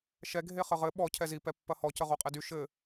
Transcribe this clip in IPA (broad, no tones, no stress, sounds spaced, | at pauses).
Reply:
ʃ ɛ ɡʱ e χ ə ʁ ɘ ɓ ɔ cʰ ɛ z i p ɛ pː ɐ h ɔ c ə ʁ o qʼ ɛ d y ʃ ɘ